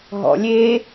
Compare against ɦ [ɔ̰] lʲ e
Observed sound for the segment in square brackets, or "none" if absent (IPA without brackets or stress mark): ɔ̰